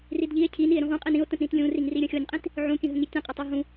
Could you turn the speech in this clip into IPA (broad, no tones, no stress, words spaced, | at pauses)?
ridʎie̯ cʰi nie̯ɾũʁũqʼin ĩo̯tə̃tɾĩt lʲũriŋri ɾʲə̃xʲonʲqʼĩt | ʕũkʲə̃ɦə̃ ŋitʲə̃qʼə tˤoɦũ